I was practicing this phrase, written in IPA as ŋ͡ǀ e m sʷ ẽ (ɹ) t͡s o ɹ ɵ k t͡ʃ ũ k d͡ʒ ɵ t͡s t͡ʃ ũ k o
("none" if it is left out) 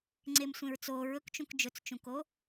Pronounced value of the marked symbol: ɹ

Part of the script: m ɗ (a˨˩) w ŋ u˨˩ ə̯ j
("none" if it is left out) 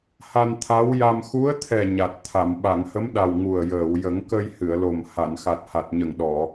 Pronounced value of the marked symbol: a˨˩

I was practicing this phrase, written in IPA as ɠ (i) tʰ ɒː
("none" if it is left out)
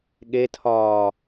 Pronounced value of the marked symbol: e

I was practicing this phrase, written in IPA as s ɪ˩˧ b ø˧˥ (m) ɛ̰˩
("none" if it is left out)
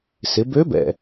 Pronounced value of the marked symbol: b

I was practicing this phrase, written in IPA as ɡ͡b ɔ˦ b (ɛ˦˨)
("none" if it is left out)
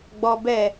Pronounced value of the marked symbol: ɛ˦˨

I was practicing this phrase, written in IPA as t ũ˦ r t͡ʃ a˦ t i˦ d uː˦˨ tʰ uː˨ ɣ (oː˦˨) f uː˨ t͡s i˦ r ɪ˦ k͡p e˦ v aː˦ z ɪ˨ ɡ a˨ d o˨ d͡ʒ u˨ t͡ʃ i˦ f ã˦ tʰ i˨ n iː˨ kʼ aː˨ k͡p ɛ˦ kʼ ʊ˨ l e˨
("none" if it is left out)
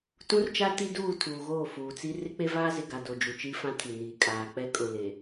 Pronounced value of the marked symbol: oː˦˨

